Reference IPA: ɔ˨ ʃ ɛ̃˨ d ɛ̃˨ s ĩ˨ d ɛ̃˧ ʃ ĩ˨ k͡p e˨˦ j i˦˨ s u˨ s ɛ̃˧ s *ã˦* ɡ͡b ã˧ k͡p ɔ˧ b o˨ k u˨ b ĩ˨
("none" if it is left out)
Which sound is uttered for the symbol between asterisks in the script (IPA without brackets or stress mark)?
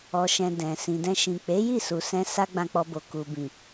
a˦